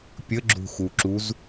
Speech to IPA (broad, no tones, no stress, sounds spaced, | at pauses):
pʲ ə ɡ͡ǁ ṳ x u ǁ u z